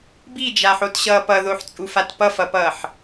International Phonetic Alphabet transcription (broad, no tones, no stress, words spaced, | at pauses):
bid͡ʒaħotɕʌː pʌðoħt͡sʼufat pʌfʌpʌːħ